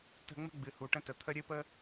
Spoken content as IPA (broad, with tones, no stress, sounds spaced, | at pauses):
t ə̤˧ ŋ͡m ə̤˦ ɡ͡b ɨ˨ h u˨ ʈ ə̃˧ t ə˨ t̪ʰ ə˧ ɾʲ ɨ˧ p ə˧